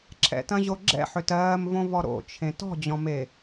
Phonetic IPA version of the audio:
ǁʰ ɛ̰ t ɐ̃ ʑ o ɡ͡ǁ ɛ̰ ħ ø t ɜː m v õ v ɔ ɾ o̰ t͡ʃʰ ẽ t ɔ̤ d͡ʑ ɔ̃ m e

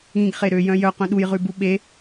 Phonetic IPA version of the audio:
ĩ ɡ χ e ɾ ø j œ̃ j œ q œ̃ ɗ u j ʁ ʉ b u ɓ e

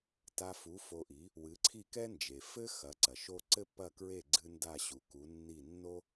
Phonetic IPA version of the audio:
t a˧ f u˩˥ f o˧ ʔ i˩˥ | w ɨ˩˥ ǀʰ i˥˩ k ɛ˥ n d͡ʒ e˩ f ɘ˥ x ɐ˩˥ ǀ ɐ˩ ʃ o˥ ǀ ɘ˥ pː ɐ˥˩ k ɹ e˥˩ ɡ͡ǀ ɨ˧ n d a˥˩ ɕ u˩ k u˩˥ nː i˥˩ nː o˥

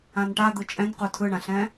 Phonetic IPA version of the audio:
ã n ʈ a d̪ ɯ t͡ʃʼ ɛ̃ n q u tʰ ɯ ɳ ã ɬ ɛ̃

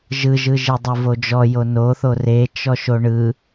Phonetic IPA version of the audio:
ʒ ɯ ʒ ɯ ʒ i dˤ o v o d͡ʒ ɔ j o n o θ o r e t͡ʃ ɔ ʃ o ɳ ɯ

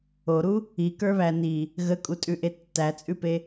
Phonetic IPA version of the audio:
o ɾ u | i k ə˞ β æ n i | ɣ ə kʼ u tʼ ʉ ʔ e tː æ t͡sʼ ʉ p e

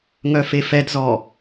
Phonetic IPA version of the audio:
ŋ œ f e f ɛ d z ɔ

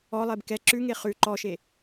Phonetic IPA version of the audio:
ɔ lˠ e b k ɛ ǁ ʉ ŋ e χ ʉ ǃ ɔ ʃ e

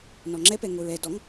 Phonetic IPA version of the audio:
n ɔ ŋ͡ǁ ɛ p ɛ ŋ o ɹ ɛ d ɔ ŋ

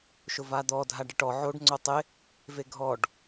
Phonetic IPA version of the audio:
ʃ ʊ v a d̪ ɔ dʱ a ɖ ɪ ʈ ɔ ʕ o ɖ ŋ͡ǀ o tˤ ɪ | v e ɡʱ ɔ ɖ

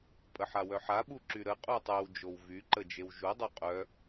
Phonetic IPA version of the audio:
pʼ ə ħ a w œ ħ a ɓ u ǁ y ɾ ə qʼ u tˤ y w d͡ʒ o w v y ǃ ə d͡ʒ e w ʒ u dˤ o qʼ œ

